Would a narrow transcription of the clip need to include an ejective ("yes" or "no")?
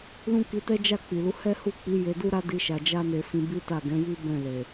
no